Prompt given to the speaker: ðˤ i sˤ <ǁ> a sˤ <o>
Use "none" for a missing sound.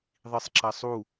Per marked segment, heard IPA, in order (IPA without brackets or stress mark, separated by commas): ǁ, u